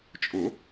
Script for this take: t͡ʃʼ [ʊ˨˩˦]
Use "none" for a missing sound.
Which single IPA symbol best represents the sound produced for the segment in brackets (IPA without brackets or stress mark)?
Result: ʊ˨˩˦